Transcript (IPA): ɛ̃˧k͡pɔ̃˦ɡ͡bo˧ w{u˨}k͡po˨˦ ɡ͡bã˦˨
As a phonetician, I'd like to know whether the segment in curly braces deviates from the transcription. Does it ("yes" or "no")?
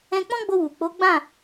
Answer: no